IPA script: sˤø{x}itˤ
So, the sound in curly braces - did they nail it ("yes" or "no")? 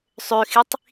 yes